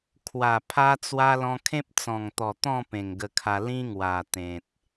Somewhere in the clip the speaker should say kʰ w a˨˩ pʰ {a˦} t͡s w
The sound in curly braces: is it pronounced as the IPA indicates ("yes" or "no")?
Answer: yes